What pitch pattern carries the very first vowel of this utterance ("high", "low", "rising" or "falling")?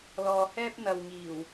low